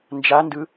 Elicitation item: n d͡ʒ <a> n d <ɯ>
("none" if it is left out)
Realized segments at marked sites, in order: a, ɯ

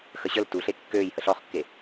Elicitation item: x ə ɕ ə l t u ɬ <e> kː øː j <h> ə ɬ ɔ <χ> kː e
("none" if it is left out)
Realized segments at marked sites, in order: e, h, χ

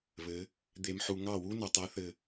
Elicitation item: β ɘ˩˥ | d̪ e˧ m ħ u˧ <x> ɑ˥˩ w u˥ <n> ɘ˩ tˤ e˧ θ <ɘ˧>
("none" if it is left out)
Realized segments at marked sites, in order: ŋ, n, ɘ˧

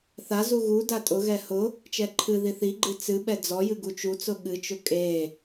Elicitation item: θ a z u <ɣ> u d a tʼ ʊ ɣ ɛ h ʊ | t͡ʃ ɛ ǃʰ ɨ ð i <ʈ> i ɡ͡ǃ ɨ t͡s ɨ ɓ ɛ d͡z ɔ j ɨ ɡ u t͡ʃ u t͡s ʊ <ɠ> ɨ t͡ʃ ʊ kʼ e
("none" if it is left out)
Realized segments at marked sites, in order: ɣ, θ, ɠ

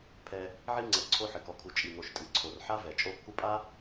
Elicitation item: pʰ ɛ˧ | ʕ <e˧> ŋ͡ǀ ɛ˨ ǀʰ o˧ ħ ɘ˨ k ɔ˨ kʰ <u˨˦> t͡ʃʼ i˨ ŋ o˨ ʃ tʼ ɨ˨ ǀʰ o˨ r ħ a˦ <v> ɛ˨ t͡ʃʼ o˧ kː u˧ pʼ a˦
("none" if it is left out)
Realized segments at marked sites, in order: i˧, u˨, v

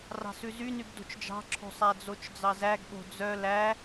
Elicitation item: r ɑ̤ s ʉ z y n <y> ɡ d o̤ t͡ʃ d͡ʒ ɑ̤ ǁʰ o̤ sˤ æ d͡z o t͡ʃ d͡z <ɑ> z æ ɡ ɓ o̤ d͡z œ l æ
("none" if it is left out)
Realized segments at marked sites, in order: y, ɑ

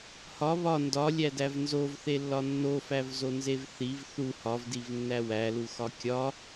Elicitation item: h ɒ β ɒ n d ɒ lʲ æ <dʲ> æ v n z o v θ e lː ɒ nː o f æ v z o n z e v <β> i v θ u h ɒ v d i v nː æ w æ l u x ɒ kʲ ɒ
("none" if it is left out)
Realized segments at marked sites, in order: d, θ

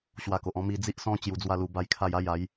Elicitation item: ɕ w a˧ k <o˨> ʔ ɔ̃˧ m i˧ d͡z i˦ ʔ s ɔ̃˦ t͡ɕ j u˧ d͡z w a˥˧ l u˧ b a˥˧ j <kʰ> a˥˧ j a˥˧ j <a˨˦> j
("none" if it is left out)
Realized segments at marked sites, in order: o˨, kʰ, a˨˦

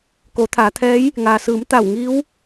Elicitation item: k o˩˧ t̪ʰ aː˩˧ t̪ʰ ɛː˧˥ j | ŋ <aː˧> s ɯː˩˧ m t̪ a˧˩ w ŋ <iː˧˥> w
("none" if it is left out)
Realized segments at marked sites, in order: aː˩, iː˧˥

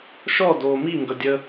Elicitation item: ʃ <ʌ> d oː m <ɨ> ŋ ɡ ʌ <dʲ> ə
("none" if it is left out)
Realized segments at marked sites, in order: ɔ, i, dʲ

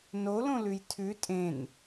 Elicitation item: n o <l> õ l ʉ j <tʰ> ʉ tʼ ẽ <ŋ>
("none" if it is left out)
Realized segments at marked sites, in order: l, tʰ, n

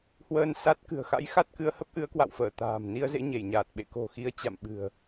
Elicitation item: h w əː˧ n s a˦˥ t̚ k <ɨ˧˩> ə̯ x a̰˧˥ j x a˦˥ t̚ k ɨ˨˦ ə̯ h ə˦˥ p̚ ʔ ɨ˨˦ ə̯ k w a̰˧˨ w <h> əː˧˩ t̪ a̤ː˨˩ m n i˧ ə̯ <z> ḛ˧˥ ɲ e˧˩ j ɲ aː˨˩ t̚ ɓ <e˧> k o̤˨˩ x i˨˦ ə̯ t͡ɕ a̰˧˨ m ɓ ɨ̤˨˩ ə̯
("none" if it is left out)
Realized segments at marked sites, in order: ɨ̤˨˩, f, z, ḛ˧˨

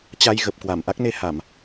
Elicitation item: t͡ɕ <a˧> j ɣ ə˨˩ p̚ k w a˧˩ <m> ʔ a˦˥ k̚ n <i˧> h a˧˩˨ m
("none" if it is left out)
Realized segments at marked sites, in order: a˧, m, e˧

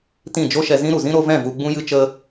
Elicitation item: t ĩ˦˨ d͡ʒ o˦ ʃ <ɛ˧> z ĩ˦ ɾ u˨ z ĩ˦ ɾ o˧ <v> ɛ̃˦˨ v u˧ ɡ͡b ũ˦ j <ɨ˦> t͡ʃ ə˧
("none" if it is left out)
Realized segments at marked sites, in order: ɛ˧, v, ɨ˦

